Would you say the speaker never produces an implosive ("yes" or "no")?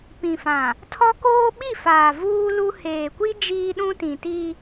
no